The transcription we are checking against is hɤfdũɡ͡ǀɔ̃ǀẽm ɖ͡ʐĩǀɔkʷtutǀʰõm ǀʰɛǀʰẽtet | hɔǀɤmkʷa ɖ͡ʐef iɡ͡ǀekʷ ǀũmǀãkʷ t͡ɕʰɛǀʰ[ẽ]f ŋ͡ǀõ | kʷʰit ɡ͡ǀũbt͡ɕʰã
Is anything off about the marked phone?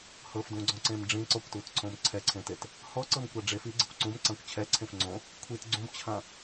no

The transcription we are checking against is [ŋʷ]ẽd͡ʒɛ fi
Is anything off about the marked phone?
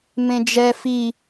yes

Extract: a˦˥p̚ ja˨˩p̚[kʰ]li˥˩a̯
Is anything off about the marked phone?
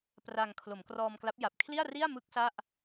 no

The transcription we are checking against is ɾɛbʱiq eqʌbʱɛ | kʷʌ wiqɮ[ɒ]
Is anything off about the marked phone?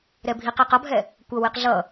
yes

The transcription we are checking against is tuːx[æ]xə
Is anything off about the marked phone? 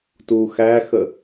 no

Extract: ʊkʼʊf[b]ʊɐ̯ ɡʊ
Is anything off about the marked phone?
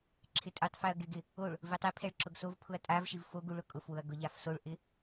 yes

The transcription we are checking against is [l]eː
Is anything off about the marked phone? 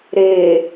yes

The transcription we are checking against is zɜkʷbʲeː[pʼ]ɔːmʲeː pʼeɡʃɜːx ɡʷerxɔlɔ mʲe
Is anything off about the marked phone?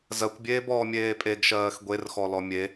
yes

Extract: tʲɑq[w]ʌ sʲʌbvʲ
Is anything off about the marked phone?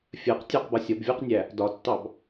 yes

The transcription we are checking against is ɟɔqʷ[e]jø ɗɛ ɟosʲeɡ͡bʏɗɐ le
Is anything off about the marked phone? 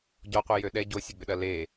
no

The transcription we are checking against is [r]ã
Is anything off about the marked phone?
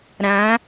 yes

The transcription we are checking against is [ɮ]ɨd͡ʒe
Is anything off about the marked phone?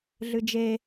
no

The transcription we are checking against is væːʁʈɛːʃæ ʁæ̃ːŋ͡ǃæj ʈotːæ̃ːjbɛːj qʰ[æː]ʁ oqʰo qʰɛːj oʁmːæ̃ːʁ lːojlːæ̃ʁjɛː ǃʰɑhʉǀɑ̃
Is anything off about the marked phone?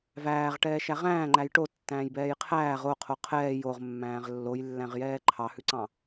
no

